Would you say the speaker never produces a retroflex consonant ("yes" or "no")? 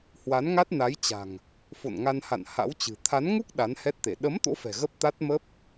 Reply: yes